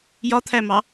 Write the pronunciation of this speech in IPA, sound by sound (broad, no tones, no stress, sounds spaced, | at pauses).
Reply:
j ɒ t̪ʰ æ m ɑ